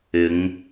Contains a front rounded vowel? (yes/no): no